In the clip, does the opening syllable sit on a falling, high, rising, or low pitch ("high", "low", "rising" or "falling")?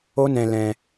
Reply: high